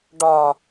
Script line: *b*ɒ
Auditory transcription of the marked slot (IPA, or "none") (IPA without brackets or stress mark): ɖ